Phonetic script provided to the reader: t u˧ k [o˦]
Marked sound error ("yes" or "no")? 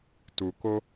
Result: no